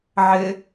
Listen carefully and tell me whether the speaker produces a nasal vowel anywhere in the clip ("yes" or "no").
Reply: no